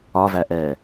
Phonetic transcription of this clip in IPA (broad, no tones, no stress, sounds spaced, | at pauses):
ɒ v æ ʔ ɛː